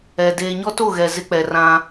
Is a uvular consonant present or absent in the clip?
absent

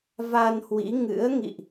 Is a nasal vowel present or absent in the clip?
absent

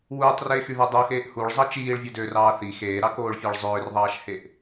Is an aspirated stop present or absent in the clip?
absent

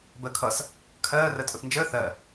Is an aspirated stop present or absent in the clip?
present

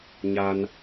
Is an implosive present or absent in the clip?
absent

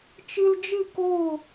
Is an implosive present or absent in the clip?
absent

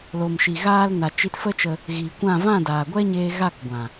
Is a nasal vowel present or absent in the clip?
present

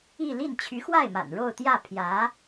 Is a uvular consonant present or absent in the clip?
absent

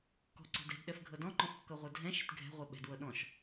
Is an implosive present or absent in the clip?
present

